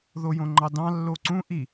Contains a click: yes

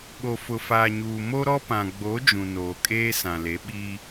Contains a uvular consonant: no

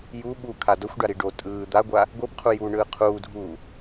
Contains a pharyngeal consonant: no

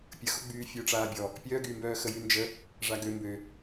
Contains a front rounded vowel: yes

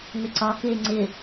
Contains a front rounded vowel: yes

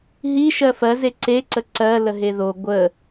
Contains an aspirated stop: no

